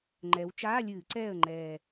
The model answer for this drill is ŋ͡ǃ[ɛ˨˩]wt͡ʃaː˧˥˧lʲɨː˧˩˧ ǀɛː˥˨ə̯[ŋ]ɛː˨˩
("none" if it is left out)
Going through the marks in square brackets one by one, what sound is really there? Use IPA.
ɛ˩˧, ŋ͡ǃ

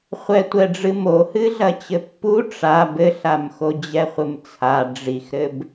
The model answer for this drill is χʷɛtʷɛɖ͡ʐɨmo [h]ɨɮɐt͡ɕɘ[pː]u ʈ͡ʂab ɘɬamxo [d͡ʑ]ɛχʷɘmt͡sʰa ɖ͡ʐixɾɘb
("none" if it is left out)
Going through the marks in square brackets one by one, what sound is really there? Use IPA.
h, pː, d͡ʑ

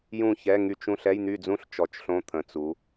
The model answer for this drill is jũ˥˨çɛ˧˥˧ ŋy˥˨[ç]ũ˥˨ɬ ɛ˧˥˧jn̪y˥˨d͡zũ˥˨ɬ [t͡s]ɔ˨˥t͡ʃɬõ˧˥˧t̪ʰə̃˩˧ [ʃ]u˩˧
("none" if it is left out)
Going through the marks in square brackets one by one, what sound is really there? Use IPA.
t͡ʃ, t͡ʃ, t͡s

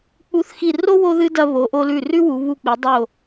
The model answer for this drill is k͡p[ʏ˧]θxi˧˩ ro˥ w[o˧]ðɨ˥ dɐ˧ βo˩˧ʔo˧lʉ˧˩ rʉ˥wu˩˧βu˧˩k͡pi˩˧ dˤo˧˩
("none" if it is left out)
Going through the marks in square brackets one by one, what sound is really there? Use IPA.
u˧, o˥

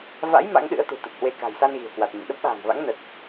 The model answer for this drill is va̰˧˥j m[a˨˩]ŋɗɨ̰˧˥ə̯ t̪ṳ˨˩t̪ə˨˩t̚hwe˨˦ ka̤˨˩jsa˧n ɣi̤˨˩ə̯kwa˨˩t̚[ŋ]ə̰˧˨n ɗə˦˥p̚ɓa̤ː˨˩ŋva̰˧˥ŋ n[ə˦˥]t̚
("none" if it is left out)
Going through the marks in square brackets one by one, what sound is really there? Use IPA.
a̰˧˥, ɲ, ə˨˩

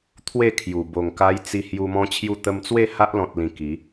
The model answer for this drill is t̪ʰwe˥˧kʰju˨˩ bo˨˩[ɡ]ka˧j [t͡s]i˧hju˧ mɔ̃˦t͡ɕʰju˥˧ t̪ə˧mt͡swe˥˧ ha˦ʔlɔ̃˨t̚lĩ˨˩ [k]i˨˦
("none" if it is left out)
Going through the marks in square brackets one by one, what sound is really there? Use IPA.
ŋ, t͡s, k

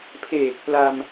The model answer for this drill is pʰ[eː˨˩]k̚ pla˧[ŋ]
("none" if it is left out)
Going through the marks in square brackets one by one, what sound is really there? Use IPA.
eː˨˩, m

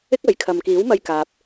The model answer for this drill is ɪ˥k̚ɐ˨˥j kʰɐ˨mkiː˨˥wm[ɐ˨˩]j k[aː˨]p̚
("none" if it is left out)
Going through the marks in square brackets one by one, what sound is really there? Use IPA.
ɐ˧, aː˨

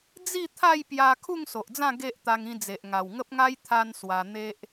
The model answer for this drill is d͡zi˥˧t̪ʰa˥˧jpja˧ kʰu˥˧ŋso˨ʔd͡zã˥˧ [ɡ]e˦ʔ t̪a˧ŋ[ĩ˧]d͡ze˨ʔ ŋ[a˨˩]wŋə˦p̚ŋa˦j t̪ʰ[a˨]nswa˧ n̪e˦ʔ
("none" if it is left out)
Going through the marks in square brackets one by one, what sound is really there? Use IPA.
ɡ, ĩ˧, a˨˩, a˦

